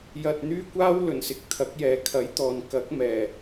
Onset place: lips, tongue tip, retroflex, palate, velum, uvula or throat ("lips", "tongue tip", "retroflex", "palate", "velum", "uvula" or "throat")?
palate